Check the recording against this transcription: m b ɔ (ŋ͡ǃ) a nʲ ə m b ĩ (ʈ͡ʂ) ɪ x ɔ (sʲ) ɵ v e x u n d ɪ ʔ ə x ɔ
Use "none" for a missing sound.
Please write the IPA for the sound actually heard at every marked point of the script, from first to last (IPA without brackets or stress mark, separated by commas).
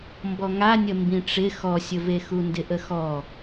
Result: ŋ, ʈ͡ʂ, sʲ